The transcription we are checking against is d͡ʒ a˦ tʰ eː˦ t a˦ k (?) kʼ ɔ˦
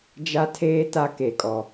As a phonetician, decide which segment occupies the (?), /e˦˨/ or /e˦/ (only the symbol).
e˦˨